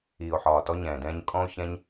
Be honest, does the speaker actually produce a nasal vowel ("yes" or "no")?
yes